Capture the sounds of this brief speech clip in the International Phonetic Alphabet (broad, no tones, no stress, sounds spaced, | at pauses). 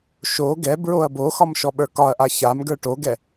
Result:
ʃ o ɡ ɛ b ɹ o ɐ̯ b o x ɒ m ʃ ɔ ɓ ə˞ k ɒ ɐ̯ ʔ a ç a m ɡ ə˞ ʈ o ɡ ɛ